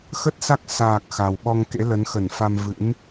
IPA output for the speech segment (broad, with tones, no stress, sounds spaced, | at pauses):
x ə˦˥ t̚ s a˦˥ k̚ s aː˨˩ k̚ x a˨˩ w ɓ ɔ˧ ŋ k ḛ˧˥ l ə˨˦ n x ə˧˩ n f a˧ m v ɨ̰˧˥ n